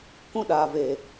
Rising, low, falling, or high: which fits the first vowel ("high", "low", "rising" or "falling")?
high